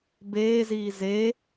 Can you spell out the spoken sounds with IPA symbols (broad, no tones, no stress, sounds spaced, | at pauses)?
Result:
b eː z iː z e